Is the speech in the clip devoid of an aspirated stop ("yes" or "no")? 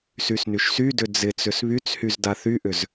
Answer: yes